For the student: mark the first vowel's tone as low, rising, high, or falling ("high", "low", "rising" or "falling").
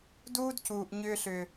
high